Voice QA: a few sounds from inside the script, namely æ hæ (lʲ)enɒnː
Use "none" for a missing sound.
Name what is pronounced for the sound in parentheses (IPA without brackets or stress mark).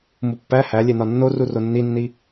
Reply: lʲ